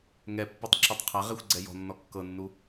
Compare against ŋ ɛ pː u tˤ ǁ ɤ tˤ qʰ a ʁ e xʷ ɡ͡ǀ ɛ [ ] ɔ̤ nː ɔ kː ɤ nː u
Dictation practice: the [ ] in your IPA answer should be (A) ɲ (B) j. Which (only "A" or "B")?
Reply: B